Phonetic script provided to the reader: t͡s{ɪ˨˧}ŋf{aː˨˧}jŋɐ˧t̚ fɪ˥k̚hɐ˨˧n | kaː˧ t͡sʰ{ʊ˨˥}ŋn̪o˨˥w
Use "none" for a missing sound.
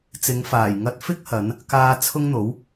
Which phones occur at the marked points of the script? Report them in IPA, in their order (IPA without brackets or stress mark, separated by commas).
ɪ˨˧, aː˨˩, ʊ˥